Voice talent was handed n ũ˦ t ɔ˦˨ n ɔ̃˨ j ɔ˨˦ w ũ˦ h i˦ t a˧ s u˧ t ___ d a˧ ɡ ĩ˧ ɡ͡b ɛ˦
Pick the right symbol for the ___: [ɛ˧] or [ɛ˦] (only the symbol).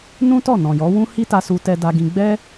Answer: ɛ˧